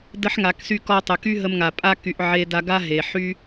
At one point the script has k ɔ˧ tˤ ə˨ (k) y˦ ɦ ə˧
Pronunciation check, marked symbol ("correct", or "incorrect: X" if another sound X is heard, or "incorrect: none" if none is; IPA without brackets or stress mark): correct